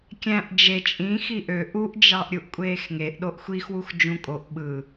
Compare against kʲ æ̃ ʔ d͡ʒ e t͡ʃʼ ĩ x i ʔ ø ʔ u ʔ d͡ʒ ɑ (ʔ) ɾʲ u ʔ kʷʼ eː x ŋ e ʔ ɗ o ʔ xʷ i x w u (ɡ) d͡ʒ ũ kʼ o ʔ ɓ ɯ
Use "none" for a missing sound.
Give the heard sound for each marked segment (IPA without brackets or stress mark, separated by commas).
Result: ʔ, x